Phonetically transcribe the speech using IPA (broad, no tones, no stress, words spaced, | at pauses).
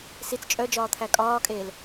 sit͡s t͡ʃʼœd͡ʒɒː t̪ʰækʼɒːkʼeːl